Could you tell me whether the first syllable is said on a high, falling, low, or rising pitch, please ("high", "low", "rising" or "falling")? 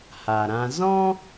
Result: low